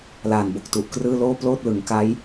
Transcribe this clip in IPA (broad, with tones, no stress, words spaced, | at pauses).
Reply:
laː˨˩nbo˨˩k̚tu˨˩ʔkrɯː˥˩ loː˥˩ploː˥˩t̚lɯ˩˦ŋka˦˥j